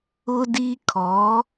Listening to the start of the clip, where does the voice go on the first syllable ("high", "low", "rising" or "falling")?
high